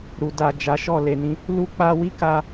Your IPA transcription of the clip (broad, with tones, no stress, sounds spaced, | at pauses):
ɾ u˨ d a˨ d͡ʒ a˨˦ ʃ ɔ˦˨ l e˨ n ĩ˨˦ | l u˦ k͡p a˧ w i˦ k a˧